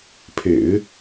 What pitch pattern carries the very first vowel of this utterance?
low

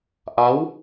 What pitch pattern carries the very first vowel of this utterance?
rising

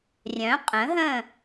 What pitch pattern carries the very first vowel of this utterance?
rising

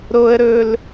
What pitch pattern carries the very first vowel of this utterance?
high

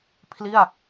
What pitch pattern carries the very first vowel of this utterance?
falling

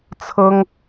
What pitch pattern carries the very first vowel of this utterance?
high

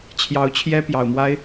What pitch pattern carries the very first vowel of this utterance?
rising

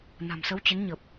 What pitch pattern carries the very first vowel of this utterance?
low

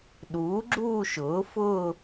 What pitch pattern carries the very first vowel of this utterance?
rising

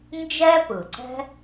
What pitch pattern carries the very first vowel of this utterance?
high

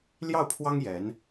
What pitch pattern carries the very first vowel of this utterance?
falling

